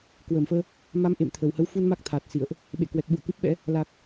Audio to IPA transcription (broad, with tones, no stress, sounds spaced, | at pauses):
k w əː˧˩ m f əː˧ | m a˨˦ m ʔ ḛ˧˨ m t̪ʰ ə˨˩ w h ə˨˦ w f u˧ n m a˦˥ k̚ t̪ʰ aː˨˩ t̚ s ḭ˧˨ ə̯ ʔ | ɓ ḛ˧˨ k w ɛ˨˩ k̚ ɓ ṵ˧˨ ə̯ k ɨ˦˥ p̚ ɓ ɛ̰˧˥ | l a˨˩ k̚